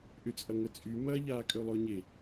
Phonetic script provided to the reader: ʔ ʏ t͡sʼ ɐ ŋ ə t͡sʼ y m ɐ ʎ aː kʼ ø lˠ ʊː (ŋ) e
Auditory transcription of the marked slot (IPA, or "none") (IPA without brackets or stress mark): ɲ